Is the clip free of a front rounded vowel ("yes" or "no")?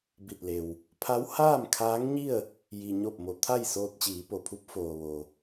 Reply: yes